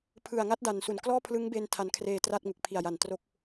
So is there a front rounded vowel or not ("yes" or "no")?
no